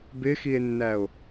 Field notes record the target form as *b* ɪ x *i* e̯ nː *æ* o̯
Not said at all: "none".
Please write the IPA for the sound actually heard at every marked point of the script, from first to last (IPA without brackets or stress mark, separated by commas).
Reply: b, i, æ